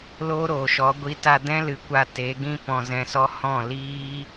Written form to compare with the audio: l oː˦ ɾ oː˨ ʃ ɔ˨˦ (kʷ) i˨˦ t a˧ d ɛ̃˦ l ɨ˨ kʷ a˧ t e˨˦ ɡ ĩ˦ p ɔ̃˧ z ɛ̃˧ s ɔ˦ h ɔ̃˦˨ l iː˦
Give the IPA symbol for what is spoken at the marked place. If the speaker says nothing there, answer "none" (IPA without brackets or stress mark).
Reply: ɡʷ